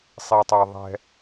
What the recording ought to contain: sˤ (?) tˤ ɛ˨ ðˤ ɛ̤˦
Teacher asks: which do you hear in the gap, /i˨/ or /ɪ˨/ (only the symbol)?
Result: i˨